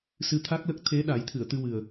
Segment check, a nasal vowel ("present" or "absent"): absent